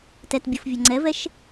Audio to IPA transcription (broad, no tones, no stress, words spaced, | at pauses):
tɛtbʲɯfvʲɤ ŋ͡ǀɛvɛʃ